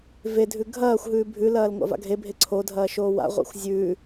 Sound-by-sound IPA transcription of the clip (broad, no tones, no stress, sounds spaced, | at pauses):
v e dʱ ʉ ɡʱ ɐː xʷ ɦ ʉː bʱ ʉ l ɐː l ŋʷ a̰ v a̰ ɡʱ e bʱ e ǀʰ o dʱ ɐː ʃ oː w a̰ ʁʷ a̰ xʷ zʲ ʉ